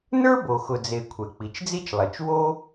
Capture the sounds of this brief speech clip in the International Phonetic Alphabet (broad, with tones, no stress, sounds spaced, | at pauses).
n ə˞˥ b o˩ x ʊ˩ d͡z e˩ kʷʰ ɛ˩ k͡p i˩ t͡ʃ d͡z i˥ t͡ʃ lˠ e˩ t͡ʃ w o˥